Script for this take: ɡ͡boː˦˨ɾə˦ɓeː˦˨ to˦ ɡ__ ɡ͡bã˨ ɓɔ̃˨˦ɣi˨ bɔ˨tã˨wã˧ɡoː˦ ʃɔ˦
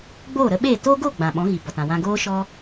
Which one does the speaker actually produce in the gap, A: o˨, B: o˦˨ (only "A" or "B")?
B